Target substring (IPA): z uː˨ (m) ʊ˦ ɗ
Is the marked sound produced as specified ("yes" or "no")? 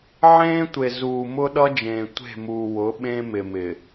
yes